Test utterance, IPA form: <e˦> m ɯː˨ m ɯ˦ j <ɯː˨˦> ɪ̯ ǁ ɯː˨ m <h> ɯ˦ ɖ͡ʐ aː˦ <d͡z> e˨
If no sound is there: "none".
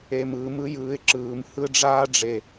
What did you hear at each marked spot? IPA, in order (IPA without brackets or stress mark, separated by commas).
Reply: e˨, ɯː˨˦, h, ɖ͡ʐ